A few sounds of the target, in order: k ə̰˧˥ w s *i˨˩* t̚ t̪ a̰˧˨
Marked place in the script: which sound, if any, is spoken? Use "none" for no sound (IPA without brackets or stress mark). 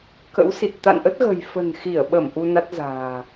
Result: i˨˩